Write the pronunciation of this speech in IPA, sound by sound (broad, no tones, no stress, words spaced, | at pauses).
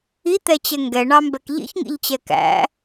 it̪ɛt͡ɕɛ ŋɡɛɳɑmbɛk ʎḭçŋḭʎt͡ɕɛ kæ̰